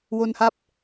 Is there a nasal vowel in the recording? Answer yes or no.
no